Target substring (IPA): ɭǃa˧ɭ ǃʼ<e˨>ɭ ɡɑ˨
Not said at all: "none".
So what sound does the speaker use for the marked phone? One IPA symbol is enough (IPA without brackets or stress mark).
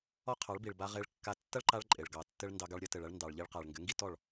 e˨